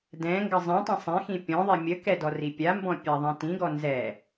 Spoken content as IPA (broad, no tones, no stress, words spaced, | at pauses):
dɛ̃ ŋɡəzˤɛ̃tˤɛ̃ sˤɛ̃xĩ pʲɔ̃ðˤi mʲəkɛ dɔripʲambɔ̃ pʲaðˤɛ̃tĩɡɔ nzɛ